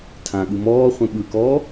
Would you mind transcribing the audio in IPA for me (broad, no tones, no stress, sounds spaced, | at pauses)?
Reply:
tʰ ã ɠ ɯ m ɔː χʷ ẽ ɓ ɯ k ɔː